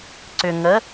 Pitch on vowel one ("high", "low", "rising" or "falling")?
low